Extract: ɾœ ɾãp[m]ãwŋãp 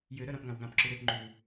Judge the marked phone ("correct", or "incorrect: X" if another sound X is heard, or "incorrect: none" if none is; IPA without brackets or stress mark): incorrect: ŋ